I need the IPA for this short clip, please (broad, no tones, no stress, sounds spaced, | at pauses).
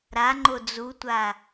ɾ a ŋ͡ǃ o d͡z u tʷ a